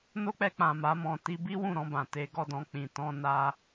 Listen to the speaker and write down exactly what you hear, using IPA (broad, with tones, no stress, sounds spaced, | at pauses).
n o˦ k͡p ɛ˧ k͡p ã˨ m a˨˦ m ɔ̃˧ t i˧ b i˦ w ũ˦˨ ɾ ɔ̃˧ b ã˨ t e˧ ɡ ɔ˧ d ɔ̃˧ k͡p ĩ˨ t ɔ̃˧ n a˧